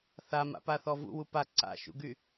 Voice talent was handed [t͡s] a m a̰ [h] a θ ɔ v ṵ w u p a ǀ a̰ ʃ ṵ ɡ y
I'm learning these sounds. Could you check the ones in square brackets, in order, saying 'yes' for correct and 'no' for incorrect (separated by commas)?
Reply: no, no